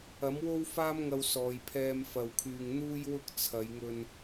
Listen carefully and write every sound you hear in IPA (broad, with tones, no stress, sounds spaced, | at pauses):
ɐ˨˥ m w o˥ w f aː˥ m ŋ ɐ˧ w s ɔː˨ j pʰ ɛː˧ m f ɐ˧ w kʰ yː˧ ŋ n̪ uː˥ j w ʊ˥ k̚ t͡sʰ ɐ˨˧ j ŋ ɵ˧ n